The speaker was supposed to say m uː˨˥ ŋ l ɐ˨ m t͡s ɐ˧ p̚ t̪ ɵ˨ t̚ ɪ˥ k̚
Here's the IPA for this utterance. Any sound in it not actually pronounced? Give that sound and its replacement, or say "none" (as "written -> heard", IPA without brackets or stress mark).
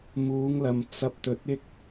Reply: none